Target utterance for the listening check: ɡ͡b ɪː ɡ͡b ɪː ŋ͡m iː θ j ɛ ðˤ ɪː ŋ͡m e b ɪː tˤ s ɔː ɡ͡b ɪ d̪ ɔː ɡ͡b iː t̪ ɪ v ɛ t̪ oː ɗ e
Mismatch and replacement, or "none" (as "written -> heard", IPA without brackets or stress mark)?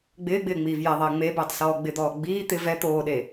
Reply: θ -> v